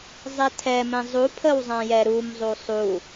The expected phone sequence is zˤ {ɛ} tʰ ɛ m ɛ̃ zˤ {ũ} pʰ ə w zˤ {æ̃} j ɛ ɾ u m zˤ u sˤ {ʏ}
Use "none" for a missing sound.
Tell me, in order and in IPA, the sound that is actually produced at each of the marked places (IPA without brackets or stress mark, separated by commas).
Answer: ɛ, u, ã, u